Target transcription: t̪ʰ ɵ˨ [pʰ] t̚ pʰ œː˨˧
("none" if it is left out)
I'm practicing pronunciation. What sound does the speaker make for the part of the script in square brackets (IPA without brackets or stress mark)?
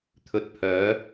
none